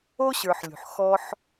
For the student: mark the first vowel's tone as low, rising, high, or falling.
high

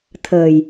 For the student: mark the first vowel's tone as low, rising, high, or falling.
low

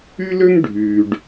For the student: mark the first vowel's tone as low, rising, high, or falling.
high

